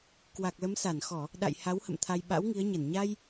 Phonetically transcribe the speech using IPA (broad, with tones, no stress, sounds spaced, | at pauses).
k w a˨˩ k̚ l ə˨˦ m s a˧˩ n x ɔ˧˩˨ | ɗ a̰˧˨ j h a˨˦ w h ə̰˧˨ m t̪ʰ a˧ j ɓ a̰˧˥ w ŋ i˨˦ ə̯ ɲ ə˧˩ n ɲ a˧ j